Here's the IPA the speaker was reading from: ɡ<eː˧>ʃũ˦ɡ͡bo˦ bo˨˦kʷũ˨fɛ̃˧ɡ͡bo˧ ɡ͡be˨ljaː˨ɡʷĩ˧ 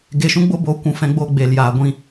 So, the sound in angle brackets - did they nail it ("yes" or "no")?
no